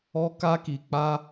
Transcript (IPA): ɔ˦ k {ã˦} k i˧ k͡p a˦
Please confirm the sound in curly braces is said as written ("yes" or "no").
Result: no